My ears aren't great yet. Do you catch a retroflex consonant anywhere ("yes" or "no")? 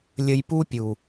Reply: no